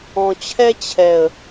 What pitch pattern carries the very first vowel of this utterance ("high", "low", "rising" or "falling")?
low